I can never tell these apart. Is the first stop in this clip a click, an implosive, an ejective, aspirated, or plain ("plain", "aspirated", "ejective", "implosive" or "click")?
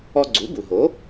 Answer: click